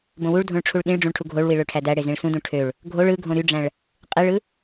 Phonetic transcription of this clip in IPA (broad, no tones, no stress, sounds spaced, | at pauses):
b õ w u ɭ dʱ õ ɭ ʈ͡ʂʰ u ɭ ɗ ĩ ɭ ɖ͡ʐ ũ ɭ ʈʰ u ɡʱ o ɭ w i ɭ ø ʈʰ æ d æ ɽ e z ĩ ɭ s ũ d ũ ʈʰ ø ɭ | ɡʱ o ɭ ɯ ɡʱ õ ɾ y ɖ͡ʐ æ̃ ɭ | qʼ i ɭ ɯ